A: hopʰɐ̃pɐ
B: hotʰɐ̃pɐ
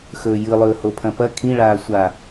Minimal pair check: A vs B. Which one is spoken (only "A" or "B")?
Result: A